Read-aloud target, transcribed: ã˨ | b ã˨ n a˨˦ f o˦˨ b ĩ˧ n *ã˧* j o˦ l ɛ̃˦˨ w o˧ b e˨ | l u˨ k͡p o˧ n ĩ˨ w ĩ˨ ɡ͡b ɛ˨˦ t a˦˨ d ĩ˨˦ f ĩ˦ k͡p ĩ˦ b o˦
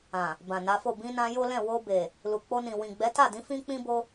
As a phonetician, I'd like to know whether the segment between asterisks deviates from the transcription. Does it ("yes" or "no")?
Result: no